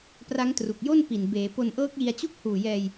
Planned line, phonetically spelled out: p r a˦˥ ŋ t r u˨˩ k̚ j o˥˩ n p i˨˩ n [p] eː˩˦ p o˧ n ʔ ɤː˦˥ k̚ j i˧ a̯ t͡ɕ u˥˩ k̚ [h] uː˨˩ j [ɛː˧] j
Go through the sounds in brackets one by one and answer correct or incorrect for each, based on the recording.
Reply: incorrect, correct, correct

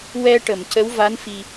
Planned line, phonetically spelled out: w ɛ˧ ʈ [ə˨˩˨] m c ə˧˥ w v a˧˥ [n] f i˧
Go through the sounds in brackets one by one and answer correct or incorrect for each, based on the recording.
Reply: correct, correct

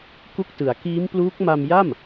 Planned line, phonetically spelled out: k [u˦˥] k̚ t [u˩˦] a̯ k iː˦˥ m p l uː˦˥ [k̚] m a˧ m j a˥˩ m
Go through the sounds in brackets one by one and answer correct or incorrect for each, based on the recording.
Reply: incorrect, incorrect, correct

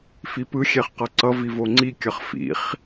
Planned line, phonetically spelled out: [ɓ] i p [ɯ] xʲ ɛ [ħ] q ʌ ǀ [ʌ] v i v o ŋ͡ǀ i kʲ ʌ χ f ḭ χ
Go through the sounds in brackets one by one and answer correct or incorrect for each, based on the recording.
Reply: incorrect, correct, incorrect, correct

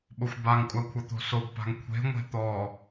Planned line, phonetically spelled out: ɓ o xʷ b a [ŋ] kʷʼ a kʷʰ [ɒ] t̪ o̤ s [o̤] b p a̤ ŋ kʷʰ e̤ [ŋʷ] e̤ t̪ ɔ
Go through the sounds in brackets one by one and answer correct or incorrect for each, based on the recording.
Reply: correct, incorrect, incorrect, correct

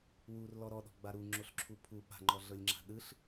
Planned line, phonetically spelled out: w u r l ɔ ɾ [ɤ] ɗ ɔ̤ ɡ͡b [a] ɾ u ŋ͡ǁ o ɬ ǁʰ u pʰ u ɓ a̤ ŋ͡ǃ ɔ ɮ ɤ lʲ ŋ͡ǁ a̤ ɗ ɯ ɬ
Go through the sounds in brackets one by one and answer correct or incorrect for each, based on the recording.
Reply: incorrect, correct

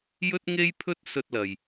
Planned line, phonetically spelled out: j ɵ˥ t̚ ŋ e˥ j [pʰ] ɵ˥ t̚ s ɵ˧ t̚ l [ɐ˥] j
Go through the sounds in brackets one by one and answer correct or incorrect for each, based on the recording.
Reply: correct, incorrect

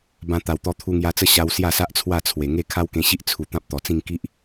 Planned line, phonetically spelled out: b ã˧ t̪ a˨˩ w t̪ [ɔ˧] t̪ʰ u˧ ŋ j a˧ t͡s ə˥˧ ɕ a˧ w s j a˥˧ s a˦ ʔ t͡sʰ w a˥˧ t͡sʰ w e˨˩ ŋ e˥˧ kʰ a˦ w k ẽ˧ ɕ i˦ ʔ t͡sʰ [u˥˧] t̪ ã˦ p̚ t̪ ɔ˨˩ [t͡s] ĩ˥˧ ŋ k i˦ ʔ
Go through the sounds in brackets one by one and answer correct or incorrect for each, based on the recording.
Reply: correct, incorrect, correct

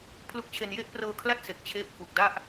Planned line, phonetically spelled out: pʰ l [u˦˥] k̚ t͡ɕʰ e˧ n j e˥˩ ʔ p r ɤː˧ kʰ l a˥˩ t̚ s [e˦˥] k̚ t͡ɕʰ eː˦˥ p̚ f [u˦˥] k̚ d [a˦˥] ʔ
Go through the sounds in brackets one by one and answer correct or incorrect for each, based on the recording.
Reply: correct, incorrect, incorrect, incorrect

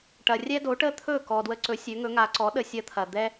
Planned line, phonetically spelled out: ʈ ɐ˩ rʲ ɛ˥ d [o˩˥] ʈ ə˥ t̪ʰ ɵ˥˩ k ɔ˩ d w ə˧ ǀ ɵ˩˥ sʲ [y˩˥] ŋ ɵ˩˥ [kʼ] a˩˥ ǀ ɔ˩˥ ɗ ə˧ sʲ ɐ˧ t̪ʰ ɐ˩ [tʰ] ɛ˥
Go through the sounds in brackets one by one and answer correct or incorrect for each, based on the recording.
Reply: correct, incorrect, incorrect, incorrect

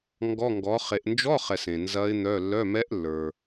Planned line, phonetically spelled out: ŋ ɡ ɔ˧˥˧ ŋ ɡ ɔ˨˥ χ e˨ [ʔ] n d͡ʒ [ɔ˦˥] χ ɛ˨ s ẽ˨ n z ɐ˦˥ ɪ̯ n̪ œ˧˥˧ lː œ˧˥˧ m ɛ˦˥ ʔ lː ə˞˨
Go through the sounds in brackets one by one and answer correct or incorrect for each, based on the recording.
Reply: correct, incorrect

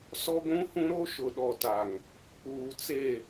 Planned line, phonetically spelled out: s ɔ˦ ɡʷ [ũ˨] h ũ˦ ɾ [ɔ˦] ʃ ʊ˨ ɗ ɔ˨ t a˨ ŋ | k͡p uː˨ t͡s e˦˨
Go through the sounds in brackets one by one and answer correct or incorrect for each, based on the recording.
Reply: incorrect, incorrect

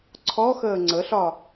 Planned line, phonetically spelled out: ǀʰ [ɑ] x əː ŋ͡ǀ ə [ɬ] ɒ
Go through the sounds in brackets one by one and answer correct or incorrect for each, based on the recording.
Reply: incorrect, correct

